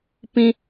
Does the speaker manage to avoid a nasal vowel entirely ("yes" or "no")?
no